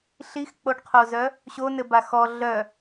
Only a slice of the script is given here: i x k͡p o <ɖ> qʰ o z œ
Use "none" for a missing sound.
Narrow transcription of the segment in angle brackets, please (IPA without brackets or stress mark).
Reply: ɖ